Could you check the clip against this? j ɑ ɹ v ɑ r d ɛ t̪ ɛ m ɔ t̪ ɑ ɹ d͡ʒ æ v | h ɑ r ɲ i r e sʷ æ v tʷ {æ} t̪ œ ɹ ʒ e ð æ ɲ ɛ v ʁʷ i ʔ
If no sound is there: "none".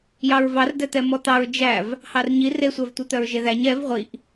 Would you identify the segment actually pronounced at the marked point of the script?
œ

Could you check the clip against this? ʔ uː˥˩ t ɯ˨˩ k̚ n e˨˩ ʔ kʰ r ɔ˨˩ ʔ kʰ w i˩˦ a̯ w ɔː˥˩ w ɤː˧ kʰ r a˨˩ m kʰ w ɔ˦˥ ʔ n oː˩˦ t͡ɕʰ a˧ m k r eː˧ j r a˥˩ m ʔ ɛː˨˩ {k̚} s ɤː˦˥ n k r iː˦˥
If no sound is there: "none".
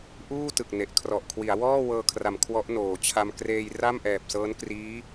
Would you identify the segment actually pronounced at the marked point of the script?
p̚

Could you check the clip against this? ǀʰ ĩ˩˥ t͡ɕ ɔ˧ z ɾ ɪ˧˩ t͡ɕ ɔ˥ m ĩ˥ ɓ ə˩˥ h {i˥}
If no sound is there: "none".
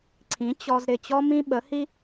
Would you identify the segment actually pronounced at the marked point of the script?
i˥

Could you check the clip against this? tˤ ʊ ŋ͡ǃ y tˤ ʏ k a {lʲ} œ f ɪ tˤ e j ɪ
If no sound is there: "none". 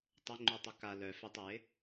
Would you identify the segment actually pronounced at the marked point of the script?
l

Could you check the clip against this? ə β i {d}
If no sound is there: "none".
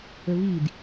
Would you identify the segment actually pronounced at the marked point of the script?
d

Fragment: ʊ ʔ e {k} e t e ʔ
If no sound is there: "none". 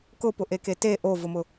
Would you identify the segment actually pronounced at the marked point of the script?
k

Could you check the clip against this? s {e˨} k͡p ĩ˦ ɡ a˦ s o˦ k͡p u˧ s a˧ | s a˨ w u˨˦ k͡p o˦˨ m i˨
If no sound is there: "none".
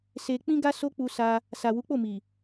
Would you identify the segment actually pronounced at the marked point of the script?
e˧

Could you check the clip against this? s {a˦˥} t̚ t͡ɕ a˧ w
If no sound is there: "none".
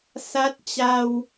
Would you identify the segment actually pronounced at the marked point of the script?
a˦˥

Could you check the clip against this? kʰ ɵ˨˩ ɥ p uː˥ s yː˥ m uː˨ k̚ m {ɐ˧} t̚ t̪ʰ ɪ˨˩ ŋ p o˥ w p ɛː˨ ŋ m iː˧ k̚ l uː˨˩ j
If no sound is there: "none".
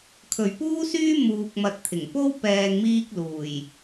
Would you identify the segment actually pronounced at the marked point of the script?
ɐ˨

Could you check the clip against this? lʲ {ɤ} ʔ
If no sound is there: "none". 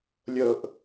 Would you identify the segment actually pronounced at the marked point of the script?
ɤ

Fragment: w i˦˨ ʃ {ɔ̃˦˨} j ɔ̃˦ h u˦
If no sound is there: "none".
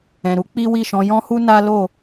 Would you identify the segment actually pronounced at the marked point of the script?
ɔ̃˨˦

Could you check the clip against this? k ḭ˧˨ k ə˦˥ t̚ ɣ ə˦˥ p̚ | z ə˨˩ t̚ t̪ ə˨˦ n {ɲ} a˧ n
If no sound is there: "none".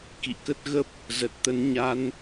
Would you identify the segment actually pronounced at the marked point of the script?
ɲ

